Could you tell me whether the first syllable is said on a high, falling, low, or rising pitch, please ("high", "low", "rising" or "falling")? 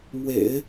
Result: low